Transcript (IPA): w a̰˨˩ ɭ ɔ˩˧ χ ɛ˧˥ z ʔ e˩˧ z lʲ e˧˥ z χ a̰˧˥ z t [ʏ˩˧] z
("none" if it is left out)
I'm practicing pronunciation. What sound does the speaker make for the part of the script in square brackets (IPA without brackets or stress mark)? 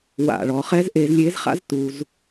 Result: u˩˧